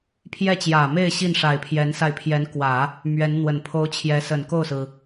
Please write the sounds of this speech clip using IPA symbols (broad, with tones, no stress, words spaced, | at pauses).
pʰjɛ˥˩t͡ɕjä˨˩me˥˧ɪ̯ ɕi˥˩nʂa˨˩ɪ̯pʰjɛ˧˥nsa˧ɪ̯ pʰjɛ˧˥nkwä˨˩˦ | mɥɛ˧˥nn̪wə˨˩npʰo˥ʊ̯ t͡ɕʰjɛ˧˥sə˨˩nko˥˩ʊ̯sɹ̩˩